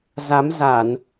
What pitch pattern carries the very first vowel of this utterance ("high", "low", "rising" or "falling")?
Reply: rising